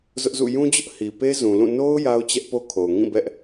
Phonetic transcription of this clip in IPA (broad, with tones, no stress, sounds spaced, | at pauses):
z ʊ˦ ʔ z ṵ˦˨ j ũ˦ d͡ʑ ʊ˦ ʔ h i˨ p e˦ z ũ˨ l ũ˦˨ n o˦ ʊ̯ j a˦ ʊ̯ t͡ɕ ɛ˦ ʔ p o˦ kʰ o˨ ʊ̯ ŋ ĩ˦˨ b ɛ˦ ʔ